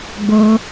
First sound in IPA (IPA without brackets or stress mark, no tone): ɡ͡b